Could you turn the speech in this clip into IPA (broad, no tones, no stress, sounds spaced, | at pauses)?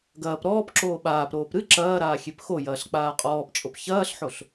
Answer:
ɡ ɐː p ɾ ɔː p ǁ oː ɓ aː p ɾ oː p ɾ ɨ ǁ ɐː ɾ aː xʲ e p x o j ɐː ɬ k͡p aː qʼ ɔː p t͡ʃʼ o p ç ɐː ɬ ħ o ɬ